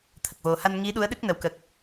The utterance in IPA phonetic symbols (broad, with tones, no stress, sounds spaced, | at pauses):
t̪ʰ ə˨˩ k̚ v o˨˩ h a˧ n ŋ i˧˥ ɗ u˧˥ ə̯ ɗ ɨ˦˥ k̚ n ə˨˩ w k ə˨˩ k̚